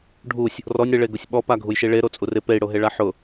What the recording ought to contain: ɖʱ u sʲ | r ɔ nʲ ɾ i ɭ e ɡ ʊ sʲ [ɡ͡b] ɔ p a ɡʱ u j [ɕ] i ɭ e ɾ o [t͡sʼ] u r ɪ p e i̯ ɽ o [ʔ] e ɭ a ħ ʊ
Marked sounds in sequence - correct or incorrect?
incorrect, incorrect, correct, incorrect

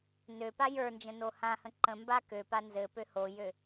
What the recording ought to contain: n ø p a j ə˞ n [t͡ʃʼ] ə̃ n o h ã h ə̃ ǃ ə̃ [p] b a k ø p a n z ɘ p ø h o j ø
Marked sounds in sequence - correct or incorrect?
incorrect, incorrect

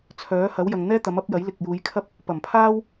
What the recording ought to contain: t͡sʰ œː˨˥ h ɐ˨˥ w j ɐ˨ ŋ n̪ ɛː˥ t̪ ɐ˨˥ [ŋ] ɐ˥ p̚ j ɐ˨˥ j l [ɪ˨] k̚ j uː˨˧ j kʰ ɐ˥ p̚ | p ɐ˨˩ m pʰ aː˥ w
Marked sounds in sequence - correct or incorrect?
incorrect, correct

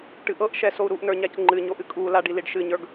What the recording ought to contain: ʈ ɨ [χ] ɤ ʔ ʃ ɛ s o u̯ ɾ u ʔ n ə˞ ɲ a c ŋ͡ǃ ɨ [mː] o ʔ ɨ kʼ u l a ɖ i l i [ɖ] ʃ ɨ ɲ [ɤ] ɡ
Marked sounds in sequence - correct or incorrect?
incorrect, incorrect, correct, incorrect

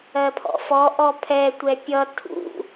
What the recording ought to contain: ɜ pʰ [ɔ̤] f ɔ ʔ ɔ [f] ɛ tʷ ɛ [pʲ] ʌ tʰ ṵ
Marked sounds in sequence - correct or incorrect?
incorrect, incorrect, correct

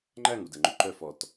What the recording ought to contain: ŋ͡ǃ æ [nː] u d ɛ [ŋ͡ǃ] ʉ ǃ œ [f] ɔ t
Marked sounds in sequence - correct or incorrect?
incorrect, correct, correct

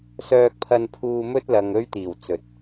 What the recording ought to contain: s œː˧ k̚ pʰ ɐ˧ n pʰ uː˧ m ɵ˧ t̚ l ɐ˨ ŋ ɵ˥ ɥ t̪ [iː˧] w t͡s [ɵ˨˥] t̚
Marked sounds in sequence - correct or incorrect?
incorrect, correct

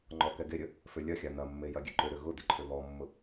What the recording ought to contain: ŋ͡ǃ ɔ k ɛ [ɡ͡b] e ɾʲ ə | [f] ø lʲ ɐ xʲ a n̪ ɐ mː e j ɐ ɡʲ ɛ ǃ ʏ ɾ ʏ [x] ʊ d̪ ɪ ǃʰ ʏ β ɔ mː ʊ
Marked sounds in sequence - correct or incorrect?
incorrect, correct, incorrect

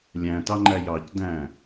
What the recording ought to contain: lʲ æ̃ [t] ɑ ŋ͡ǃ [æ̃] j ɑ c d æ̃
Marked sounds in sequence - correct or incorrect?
correct, incorrect

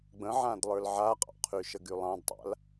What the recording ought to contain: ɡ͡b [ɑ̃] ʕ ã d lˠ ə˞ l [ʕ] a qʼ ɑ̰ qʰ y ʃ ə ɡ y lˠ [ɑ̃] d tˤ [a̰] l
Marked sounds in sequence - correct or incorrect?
incorrect, correct, correct, correct

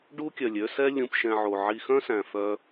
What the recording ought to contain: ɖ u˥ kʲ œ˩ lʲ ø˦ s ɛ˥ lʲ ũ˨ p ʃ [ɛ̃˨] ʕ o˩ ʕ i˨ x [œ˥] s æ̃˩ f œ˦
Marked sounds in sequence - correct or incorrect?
correct, incorrect

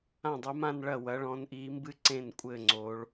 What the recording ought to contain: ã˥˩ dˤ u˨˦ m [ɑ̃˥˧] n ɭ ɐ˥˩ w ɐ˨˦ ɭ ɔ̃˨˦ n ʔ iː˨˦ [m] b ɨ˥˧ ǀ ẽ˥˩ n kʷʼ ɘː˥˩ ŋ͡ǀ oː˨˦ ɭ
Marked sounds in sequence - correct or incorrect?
incorrect, correct

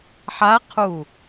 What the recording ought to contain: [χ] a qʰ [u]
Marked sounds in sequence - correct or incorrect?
incorrect, correct

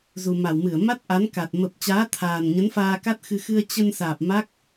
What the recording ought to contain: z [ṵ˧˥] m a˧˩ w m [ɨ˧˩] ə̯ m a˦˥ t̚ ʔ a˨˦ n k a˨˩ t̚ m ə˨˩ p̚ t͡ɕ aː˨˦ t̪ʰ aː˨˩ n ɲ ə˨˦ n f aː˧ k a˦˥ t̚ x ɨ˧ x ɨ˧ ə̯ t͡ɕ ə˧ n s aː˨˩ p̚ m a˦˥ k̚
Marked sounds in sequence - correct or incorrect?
incorrect, correct

